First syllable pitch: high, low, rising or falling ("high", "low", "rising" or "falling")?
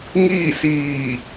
falling